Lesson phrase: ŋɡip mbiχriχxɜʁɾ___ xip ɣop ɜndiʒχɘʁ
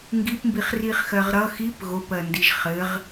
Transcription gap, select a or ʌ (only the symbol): ʌ